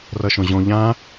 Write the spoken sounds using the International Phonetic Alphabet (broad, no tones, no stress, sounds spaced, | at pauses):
r ʌ ʃ õ ʑ õ ʎ ã